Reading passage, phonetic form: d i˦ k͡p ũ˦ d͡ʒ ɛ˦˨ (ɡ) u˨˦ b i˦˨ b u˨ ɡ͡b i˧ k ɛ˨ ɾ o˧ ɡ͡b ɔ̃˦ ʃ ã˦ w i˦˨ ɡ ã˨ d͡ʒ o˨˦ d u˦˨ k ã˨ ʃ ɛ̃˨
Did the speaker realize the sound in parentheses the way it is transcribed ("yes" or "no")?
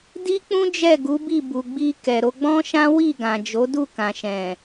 yes